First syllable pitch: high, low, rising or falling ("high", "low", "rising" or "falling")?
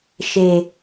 low